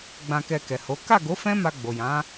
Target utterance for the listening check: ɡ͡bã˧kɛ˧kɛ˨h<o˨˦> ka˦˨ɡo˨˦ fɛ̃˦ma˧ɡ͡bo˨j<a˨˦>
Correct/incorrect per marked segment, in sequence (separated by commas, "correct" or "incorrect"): correct, incorrect